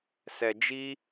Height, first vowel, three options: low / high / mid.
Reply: mid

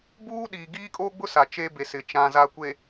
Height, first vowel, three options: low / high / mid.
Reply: high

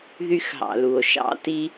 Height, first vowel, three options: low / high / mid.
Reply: high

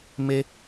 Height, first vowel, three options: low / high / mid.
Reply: mid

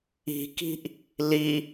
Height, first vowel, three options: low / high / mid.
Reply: high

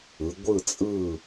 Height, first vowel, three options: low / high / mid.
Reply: high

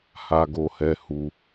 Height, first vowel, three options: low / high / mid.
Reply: low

